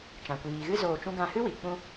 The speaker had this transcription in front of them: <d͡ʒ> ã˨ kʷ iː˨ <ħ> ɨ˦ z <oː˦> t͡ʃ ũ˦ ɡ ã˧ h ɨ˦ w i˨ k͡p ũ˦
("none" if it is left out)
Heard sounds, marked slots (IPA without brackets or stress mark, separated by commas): t͡ʃ, ɣ, oː˧